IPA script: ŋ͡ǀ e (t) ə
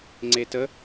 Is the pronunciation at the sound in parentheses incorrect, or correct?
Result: correct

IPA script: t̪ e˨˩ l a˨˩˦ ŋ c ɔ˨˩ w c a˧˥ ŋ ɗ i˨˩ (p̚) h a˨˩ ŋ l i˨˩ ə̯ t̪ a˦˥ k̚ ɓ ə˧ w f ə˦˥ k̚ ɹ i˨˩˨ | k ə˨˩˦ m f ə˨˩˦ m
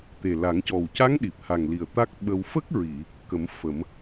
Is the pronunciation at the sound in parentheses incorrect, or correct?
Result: correct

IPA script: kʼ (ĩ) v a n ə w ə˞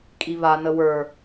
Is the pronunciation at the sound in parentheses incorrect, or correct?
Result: incorrect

